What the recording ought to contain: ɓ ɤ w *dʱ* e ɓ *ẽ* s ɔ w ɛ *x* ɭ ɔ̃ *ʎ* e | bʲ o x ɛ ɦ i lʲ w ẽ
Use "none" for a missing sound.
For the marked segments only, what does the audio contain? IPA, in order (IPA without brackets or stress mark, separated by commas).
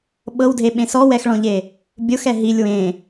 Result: dʱ, ẽ, x, ʎ